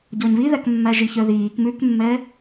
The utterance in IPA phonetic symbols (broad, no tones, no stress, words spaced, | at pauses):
ɟɔɲβiðækmːæ ʒiçœðiːk mʉkmːɛ